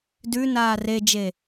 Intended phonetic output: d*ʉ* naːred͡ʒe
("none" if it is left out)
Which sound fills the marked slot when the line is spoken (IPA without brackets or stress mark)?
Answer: ʉ